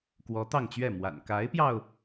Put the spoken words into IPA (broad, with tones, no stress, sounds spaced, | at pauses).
k w ɔ˧˥ t̪ ɑ˥˧ ŋ t͡ɕ ɥ ɛ˥˩ m w a̰˨˩ n k a˧˥ ɪ̯ p j ɑ˧ ʊ̯